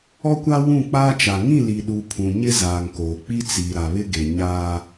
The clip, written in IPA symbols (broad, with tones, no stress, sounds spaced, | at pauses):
ɔ˦ kʷ a˦ w ũ˦˨ k͡p aː˦ t͡ʃ a˨ ŋ ĩ˦˨ l i˨ ɗ u˨ pʰ ũ˨ ɲ ɪ˦ z aː˨ ŋ k oː˨ k͡p i˦ t͡s i˨ ɾ a˨ β ɪ˦ ɡ e˨ ɲ aː˦